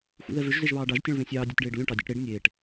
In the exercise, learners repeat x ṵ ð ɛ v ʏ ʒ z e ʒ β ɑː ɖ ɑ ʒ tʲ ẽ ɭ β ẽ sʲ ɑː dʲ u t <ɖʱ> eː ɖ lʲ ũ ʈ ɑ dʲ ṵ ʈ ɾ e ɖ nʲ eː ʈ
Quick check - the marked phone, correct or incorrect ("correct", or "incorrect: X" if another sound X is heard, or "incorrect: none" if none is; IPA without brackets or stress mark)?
incorrect: ɖ